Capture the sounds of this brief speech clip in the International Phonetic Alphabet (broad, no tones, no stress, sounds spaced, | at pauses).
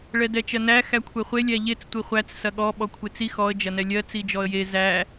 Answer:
ɭ ɛ d ɛ t͡ʃ ɜ n æ x æ kʷʰ ɛ χʷ e lʲ æ ʎ e t͡s tʷ i χʷ æ t͡s s ɐ ɠ ɔ ɓ ɔ kʷʰ e t͡s i x ɔ ə̯ d͡ʒ ɐ n ɛ lʲ ɜ t͡s i d͡ʒ ɔ ə̯ j e z æ